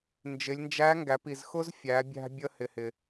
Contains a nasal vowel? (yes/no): no